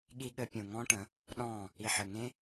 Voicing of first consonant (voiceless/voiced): voiced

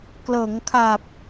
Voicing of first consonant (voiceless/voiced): voiceless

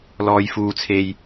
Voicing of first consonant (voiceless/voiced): voiced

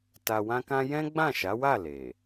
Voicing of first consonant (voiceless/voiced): voiceless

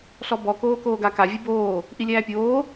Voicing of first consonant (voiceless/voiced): voiceless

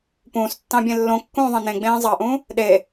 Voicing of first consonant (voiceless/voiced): voiceless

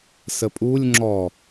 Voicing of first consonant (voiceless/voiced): voiceless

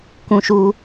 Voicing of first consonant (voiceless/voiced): voiceless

